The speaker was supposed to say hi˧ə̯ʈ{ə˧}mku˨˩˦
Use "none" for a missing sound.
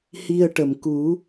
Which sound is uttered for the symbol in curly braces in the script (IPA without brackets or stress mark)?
ə˨˩